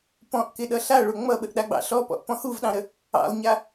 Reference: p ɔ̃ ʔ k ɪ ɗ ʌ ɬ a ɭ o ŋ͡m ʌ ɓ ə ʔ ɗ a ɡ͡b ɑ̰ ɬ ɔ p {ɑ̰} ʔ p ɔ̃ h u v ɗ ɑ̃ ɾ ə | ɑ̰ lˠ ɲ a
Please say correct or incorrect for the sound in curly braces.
incorrect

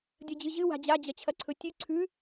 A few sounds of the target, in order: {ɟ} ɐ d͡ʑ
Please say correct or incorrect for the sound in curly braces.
incorrect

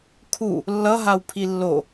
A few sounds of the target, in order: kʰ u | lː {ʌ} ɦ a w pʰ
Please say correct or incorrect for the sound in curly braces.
correct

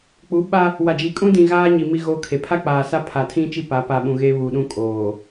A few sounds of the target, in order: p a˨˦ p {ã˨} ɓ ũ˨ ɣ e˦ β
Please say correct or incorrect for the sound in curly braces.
incorrect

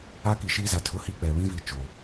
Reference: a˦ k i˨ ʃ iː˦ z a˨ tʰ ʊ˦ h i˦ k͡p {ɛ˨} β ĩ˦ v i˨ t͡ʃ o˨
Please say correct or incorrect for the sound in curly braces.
correct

